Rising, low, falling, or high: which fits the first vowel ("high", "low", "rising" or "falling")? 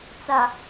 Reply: low